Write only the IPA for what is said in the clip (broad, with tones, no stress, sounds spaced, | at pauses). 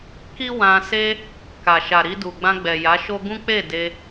k i˦ w ã˧ s e˦ | k a˨ ʃ a˨ ɾ i˧ d u˨ ɡ͡b ã˧ ɡ͡b ɛ˨ j a˨˦ ʃ o˦ ɡ ũ˦ k͡p e˦˨ d e˧